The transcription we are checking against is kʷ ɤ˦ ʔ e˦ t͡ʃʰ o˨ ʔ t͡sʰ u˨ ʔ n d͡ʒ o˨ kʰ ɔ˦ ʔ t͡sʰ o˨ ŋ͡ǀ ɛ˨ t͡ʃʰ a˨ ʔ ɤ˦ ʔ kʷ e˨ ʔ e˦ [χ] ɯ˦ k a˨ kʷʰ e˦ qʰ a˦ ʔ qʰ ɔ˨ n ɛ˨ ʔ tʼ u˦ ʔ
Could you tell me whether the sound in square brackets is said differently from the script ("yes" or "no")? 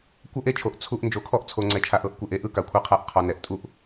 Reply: yes